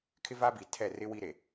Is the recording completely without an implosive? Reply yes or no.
yes